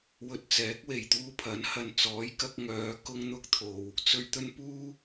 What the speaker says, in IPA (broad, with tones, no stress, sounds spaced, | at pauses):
w ɵ˧ t̚ t͡s ɛː˨˥ k̚ w e˨˩ j t̪ uː˧ pʰ ɐ˨˥ n h ɐ˧ n t͡s ɔː˨˥ j k ɐ˥ k̚ ŋ œː˨˧ k ʊ˥ ŋ n̪ ʊ˥ k̚ t̪ʰ o˨ w | t͡s ɵ˧ ɥ t̪ ɵ˥ n p uː˥